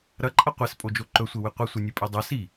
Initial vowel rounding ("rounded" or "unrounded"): unrounded